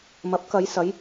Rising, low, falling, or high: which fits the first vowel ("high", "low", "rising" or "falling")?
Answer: rising